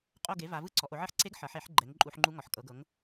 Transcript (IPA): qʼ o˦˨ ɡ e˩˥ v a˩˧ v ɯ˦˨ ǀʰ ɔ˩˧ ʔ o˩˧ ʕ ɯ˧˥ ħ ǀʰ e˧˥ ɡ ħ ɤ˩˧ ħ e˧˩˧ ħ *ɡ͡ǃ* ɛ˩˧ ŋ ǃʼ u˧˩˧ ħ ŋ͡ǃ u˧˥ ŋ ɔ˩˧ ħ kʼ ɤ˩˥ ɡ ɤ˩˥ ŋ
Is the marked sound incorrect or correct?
correct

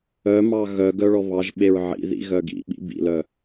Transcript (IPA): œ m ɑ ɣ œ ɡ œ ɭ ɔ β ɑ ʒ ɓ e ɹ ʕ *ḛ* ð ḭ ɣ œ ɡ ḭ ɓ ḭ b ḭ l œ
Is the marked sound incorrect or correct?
incorrect: ḭ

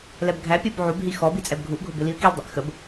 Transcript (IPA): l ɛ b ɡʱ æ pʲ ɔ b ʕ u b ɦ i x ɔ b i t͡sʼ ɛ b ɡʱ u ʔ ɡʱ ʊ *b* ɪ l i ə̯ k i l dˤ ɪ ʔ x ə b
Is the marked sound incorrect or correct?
correct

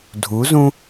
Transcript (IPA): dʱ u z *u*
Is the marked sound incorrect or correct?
incorrect: ũ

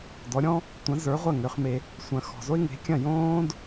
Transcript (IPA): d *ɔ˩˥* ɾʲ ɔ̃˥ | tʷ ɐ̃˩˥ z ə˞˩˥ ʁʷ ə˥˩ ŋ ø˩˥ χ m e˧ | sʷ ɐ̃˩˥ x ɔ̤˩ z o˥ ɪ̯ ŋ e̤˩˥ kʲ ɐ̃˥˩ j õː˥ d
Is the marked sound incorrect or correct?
correct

